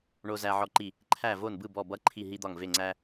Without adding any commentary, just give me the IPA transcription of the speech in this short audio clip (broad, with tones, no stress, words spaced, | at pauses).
ɳo˥zæ˥ʕɔ˥ǃi˥˧ | ǃʰæ˥˧vo˥˧nbɯ˥˧ bɔ˥˧bʌ˥ ǃʰi˥˧ɦi˥d̪ɒ˥˧ŋve˥˧ ŋ͡ǀæ˥